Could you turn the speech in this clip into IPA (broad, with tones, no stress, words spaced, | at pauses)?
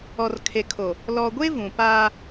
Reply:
ɔ˨r kʰe˨kʰo˨ | lɔ˨ɡʷe˦ vũ˨ paː˦